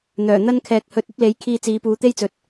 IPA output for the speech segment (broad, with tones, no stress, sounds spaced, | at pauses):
n̪ œː˨˩ n̪ ɐ˥ n kʰ ɛː˨ k̚ h ɵ˧ t̚ ɐ˥ p̚ l e˨˥ j kʰ iː˧ t͡s iː˨˧ p uː˨˧ t̪ e˥ j t͡s ɵ˨ t̚